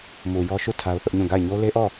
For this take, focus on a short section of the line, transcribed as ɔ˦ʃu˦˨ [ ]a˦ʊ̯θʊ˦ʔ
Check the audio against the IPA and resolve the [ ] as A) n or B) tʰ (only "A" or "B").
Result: B